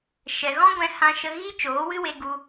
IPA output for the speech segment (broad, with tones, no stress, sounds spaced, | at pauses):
ʃ ɛ˨ ɣ ɔ̃˦ ɡʷ ɛ̃˧ h ã˧ ʃ ə˧ ɣ i˦ t͡ʃ oː˨˦ w ɨ˦ w e˧ ɡ u˧